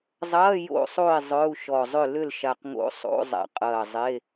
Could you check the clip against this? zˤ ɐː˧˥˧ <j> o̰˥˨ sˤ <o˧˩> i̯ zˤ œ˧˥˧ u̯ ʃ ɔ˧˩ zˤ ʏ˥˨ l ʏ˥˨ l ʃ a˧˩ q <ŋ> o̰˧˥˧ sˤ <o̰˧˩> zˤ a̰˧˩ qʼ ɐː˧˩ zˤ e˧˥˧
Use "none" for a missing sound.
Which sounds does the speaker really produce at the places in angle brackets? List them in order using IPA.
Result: j, o˥˨, ŋ, o̰˧˥˧

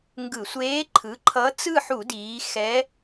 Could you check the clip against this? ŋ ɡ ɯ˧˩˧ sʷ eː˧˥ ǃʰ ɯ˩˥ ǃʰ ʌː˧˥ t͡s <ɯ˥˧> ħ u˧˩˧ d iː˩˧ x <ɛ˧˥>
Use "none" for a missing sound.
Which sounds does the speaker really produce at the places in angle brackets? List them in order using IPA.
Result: ɯ˥˧, ɛ˧˥

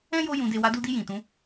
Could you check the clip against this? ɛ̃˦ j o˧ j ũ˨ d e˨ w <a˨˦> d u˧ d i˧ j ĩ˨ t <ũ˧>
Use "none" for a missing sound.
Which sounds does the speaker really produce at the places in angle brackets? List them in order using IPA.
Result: a˨˦, ũ˨˦

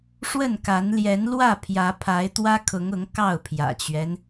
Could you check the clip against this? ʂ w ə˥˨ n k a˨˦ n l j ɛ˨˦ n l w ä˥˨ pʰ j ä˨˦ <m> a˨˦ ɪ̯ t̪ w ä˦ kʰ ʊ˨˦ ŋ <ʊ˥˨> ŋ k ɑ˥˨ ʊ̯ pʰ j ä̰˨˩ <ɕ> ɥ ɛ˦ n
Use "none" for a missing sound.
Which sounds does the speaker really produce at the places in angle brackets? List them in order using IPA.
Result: pʰ, ʊ˨˦, t͡ɕ

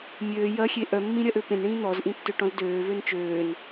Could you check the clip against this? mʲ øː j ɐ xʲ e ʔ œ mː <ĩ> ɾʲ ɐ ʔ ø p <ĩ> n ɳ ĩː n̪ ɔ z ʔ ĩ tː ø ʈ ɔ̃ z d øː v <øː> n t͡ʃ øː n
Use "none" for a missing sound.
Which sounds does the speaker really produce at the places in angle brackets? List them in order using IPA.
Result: ĩ, ẽ, ø

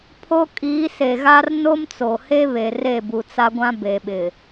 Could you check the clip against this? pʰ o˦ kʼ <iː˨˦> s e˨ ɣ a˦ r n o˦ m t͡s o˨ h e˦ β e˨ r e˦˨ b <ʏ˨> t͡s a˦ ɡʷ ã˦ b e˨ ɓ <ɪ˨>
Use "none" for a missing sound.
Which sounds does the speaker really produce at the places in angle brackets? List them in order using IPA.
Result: iː˨˦, u˨, ɪ˨

